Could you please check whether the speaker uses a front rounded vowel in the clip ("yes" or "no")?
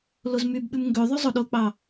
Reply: yes